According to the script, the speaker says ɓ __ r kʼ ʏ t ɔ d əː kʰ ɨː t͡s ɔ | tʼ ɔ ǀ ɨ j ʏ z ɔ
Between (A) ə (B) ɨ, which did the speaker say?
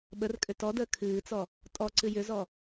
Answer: A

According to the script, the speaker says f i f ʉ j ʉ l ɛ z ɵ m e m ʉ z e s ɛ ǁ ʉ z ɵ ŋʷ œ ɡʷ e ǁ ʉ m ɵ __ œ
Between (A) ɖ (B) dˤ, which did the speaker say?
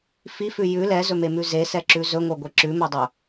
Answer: B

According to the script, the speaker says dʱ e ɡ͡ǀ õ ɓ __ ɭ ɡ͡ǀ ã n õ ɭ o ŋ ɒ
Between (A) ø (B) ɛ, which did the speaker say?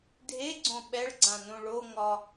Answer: B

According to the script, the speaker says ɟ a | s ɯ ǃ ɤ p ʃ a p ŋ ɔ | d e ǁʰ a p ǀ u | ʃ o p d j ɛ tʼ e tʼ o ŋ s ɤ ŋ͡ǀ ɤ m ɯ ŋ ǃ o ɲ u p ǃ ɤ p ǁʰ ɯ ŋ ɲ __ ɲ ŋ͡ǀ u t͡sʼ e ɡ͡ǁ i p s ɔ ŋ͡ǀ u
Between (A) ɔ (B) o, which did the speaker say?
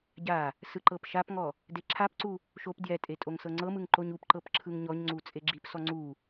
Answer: A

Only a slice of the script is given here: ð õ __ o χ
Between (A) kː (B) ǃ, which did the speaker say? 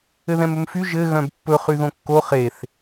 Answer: A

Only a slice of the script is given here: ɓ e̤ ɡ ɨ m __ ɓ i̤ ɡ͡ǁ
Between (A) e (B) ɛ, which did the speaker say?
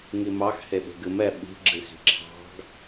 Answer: B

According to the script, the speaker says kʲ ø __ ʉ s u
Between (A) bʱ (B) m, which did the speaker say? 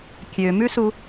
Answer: B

